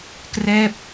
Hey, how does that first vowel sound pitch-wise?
falling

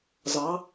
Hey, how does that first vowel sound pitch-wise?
rising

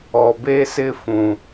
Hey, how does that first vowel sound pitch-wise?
low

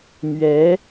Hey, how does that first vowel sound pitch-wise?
rising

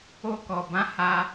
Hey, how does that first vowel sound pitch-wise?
high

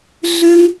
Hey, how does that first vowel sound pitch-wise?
high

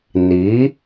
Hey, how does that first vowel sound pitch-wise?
rising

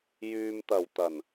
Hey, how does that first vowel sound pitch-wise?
low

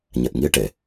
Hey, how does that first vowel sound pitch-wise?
low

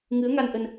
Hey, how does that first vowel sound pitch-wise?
rising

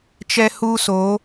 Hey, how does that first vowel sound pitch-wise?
high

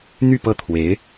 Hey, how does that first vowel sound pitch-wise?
falling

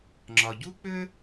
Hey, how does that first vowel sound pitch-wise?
low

